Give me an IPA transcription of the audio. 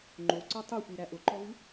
ŋ͡ǃ o ǀ ɔ tˤ o xʷ i ɾ æ ʔ ʊ ǃ ɔ v ɨ

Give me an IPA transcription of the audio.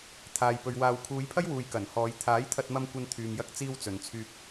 t̪ʰ aː˨ j p ɵ˨ ɥ w aː˨ w kʰ uː˨˧ j pʰ ɐ˥ j w uː˨ j k ɐ˨˩ n h ɔː˨˧ j t̪ʰ aː˨˥ j t̪ʰ ɐ˧ t̚ m ɐ˧ m kʷ ɐ˧ n t̪ʰ yː˨ m j ɐ˧ k̚ t͡s iː˧ w t͡s ɵ˨ n t͡sʰ yː˧ p̚

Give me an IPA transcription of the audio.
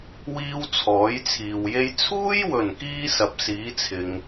w iː˥ w t͡sʰ ɔː˨˥ j t͡sʰ iː˨ w j e˥ j t͡sʰ uː˥ j w ɵ˨˩ n k iː˧ s ɐ˨ p̚ s iː˨˥ t͡sʰ ɪ˨ ŋ

